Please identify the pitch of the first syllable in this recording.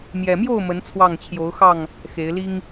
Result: low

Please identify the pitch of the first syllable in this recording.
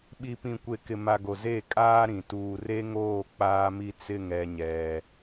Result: low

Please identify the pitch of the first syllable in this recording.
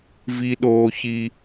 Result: high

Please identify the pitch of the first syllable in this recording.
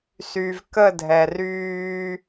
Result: low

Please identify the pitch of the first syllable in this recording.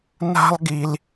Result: high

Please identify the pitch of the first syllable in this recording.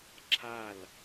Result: falling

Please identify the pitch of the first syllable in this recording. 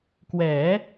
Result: rising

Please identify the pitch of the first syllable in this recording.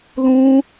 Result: high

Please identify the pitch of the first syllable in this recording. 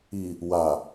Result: low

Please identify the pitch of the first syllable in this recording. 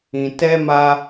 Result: low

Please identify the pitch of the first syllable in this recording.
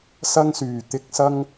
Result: high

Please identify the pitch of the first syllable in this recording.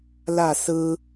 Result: falling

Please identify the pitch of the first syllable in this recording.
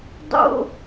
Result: high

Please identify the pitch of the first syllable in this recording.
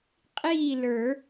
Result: falling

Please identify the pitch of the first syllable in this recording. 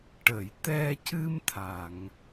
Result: low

